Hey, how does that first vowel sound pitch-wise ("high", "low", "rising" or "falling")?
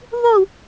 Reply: falling